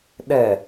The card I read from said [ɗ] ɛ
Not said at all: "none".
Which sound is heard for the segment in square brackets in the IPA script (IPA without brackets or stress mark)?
ɗ